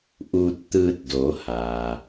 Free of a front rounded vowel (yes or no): yes